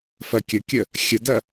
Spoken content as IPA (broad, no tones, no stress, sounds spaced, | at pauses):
f ɐ kʲ ə kʲ ə | xʲ ə d ɐ